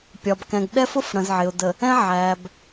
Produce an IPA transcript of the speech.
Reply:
pʲ ɒ˨ b k ɛ̃˨ ɡ ɗ ɛ˦ f ʊ˦ f ɽ ə̃˨ z ʕ ɪ˨ ʊ̯ d ə˨ | ɛ̃˦ ʕ æ˨ b

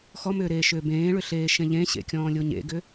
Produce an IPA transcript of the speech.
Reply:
x ɔ m ʏː ɾ eː ʃ ʏː b ẽː ɭ ʏ ɬ eː ʃ ẽ ʎ ẽ ɕ ḛ kʲ ɔ̃ː lʲ o ɲ ḛ ɡ ʏ

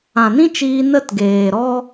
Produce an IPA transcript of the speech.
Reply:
ã˨ n ĩ˦ t͡ʃ iː˧ n ə˦˨ t ɡ eː˨ ɾ ɔ˦

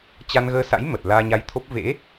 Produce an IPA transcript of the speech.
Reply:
t͡ɕ a˧ n ɣ əː˧ s a̰˧˥ j m ə˨˩ t̚ l aː˧ ɲ a˧ j t̪ʰ o˦˥ p̚ v ḛ˧˥

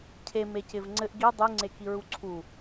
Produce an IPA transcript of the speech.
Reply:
cʰ e m e c ɪ v ŋ͡ǀ ɘ ʔ ɡ i dˤ y ŋ͡ǀ e k i ɹ u ǀʰ u

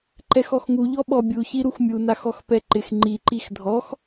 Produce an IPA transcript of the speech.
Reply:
ǃ ɛ x ɔ x ŋ u ʎ ɔ ɓ ɔ bʲ u ç i ɾ u x mʲ u n a x ɔ x p ɛ ǃ ɪ x ŋ͡ǃ i ǃ i x dʱ ɔ x

